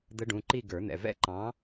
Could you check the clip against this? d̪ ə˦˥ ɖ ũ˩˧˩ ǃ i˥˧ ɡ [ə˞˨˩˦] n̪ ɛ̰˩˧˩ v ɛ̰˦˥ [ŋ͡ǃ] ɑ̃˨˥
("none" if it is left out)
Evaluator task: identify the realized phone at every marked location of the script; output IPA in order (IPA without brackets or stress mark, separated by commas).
ə˞˨˩˦, ǃ